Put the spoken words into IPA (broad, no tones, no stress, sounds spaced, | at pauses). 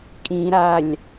kʼ ĩ ɾ a lʲ